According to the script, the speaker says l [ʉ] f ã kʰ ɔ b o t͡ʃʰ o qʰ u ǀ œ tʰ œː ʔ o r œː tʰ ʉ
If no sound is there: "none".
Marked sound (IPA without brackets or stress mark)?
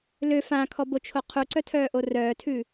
ø